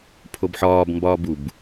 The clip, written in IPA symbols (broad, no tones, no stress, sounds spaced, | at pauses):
pʰ o b ħ ɒː b m b ɒː b u b